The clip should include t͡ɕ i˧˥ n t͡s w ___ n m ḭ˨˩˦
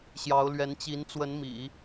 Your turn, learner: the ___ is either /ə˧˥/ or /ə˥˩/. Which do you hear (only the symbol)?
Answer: ə˧˥